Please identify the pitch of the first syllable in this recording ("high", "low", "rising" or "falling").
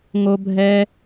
high